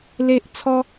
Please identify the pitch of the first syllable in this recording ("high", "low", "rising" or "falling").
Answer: high